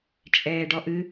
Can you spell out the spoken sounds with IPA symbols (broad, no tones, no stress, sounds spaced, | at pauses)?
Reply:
t͡ʃʼ ɛː ɖ ɔ ʔ ɨ